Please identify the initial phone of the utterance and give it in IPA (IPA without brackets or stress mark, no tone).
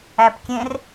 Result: æ